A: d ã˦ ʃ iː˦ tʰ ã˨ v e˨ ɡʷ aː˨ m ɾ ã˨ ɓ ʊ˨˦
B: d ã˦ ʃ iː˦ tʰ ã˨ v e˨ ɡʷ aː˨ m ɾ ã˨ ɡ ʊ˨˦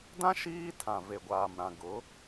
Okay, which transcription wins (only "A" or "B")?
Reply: B